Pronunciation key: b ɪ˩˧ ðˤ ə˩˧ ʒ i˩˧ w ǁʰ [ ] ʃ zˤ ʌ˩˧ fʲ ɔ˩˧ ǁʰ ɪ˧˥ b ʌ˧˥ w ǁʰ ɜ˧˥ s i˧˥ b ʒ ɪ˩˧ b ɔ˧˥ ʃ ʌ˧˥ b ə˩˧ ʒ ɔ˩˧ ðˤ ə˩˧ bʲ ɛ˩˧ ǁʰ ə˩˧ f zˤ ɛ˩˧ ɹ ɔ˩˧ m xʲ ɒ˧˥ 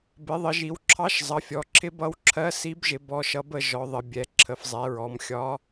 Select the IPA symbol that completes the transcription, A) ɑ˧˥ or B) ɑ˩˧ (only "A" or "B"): A